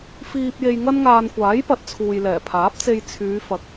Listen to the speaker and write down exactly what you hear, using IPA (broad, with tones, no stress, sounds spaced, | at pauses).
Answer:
f iː˨ p̚ j e˧ j ŋ ɐ˥ n ŋ aː˧ n kʷ aː˨˥ j p ɐ˨˥ t̚ t͡sʰ uː˨ j l ɛː˨˩ pʰ aː˨˥ p̚ t͡s e˧ j t͡sʰ yː˨˧ f ɐ˨˥ k̚